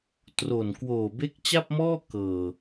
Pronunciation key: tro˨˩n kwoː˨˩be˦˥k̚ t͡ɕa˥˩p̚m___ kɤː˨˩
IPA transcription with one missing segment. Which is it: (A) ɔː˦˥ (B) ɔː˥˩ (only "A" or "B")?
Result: B